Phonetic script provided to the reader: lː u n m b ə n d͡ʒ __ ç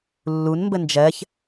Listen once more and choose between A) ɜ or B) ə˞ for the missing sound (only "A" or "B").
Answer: A